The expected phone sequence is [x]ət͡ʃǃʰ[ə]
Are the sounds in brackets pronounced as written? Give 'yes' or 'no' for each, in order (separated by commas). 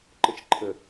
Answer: no, yes